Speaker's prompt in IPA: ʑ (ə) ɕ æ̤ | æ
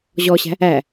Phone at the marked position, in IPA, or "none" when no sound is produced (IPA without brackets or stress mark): ɔ